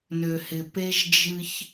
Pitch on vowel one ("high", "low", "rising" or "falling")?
low